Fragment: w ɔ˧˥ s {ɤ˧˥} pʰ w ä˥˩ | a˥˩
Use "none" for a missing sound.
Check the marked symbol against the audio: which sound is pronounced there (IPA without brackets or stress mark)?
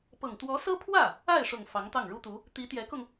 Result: ɤ˥